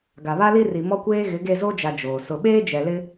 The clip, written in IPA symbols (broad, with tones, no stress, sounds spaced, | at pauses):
ɡ a˨ β a˦ l i˦ r i˨ m ɔ˦ kʷ eː˦ ɣ ɪ˨˦ ɡ e˦˨ z o˦ d͡ʒ a˨ d͡ʒ oː˨ s ʊ˨ ɓ eː˦ d͡ʒ ɛ˨ l ɪ˦